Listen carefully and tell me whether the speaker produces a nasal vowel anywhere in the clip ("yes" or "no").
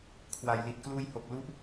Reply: no